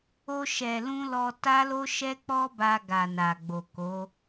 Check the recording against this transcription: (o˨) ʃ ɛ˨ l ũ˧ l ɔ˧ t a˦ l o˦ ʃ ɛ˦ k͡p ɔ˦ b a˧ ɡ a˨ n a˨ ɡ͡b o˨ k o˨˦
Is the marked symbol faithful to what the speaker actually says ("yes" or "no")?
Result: no